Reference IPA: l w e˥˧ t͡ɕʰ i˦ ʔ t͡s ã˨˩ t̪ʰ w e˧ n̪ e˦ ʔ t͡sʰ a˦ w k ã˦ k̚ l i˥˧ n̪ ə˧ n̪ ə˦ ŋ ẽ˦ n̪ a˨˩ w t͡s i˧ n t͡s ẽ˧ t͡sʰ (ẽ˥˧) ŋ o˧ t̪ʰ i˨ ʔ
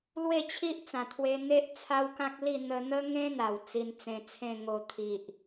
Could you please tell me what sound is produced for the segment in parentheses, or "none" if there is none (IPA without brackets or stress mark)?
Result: ẽ˥˧